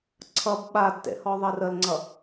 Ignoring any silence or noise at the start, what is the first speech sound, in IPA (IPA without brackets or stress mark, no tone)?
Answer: ǀʰ